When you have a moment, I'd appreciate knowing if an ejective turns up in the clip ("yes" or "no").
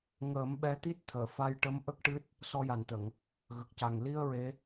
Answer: no